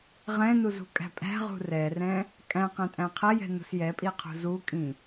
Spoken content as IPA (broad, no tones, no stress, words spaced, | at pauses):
ʁɛ̃nuzṳkʼæ̤ pʼæ̤ʁṳ rɛrɛ̃ | kʼæ̃qɛ̃tʼæ̃ qʰɛjɛ̤nṳs jɛpʼiqʰṳ zukʼĩ